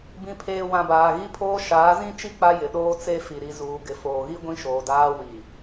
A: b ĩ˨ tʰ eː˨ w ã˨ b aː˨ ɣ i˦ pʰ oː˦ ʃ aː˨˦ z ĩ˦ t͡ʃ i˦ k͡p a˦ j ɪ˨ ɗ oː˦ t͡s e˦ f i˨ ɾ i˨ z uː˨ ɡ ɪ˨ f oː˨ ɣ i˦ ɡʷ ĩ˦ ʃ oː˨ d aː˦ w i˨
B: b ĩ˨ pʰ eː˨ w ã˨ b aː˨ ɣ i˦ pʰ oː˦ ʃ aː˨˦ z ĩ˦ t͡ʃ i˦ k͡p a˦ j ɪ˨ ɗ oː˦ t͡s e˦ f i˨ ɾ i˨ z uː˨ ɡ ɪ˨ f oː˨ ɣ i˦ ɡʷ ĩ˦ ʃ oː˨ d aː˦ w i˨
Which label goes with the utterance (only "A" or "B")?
B